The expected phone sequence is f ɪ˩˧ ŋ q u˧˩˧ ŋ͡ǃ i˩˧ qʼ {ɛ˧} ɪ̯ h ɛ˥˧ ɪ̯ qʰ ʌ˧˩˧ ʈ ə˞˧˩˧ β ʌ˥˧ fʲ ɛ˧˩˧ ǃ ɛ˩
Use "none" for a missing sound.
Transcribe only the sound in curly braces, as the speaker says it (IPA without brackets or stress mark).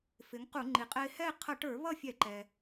ɛ˧